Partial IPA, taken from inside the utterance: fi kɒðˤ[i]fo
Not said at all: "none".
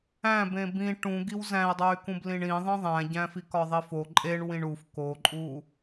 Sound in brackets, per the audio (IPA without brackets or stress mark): i